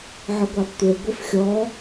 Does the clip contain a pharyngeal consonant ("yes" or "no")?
yes